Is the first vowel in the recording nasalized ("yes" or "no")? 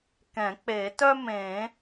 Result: yes